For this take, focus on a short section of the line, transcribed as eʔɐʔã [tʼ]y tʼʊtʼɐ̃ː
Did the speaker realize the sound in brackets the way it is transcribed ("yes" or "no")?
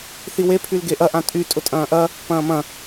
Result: yes